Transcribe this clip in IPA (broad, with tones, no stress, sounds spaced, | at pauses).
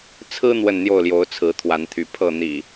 t͡sʰ ɹ̩˦ n̪ w ə˥˨ n n̪ j o˥˨ ʊ̯ l j o˨˦ ʊ̯ t͡sʰ ɹ̩˨˦ t̪ʰ w a˨˦ n t̪ʰ y˨˦ pʰ ɤ˥˨ n̪ ḭ˨˩